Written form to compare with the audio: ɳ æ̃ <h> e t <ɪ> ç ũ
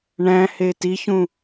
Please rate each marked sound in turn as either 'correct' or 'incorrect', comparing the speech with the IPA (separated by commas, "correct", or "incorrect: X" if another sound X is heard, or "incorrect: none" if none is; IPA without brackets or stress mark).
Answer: correct, incorrect: i